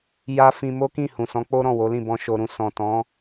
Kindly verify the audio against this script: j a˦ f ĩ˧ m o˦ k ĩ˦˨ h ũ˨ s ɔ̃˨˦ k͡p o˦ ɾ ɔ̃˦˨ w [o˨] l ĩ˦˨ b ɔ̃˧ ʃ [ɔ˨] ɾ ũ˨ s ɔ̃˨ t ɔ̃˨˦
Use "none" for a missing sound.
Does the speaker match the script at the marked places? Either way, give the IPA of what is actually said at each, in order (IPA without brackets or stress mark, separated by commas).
o˨˦, o˨